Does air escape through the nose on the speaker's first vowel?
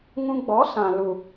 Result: yes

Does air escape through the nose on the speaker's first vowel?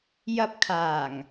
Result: no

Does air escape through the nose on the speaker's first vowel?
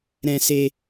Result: yes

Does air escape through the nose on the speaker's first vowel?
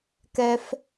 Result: no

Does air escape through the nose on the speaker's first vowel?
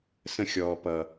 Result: yes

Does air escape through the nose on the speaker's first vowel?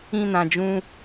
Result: yes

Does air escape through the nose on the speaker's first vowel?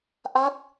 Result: no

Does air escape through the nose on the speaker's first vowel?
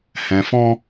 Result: yes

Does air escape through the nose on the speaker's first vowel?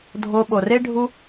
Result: no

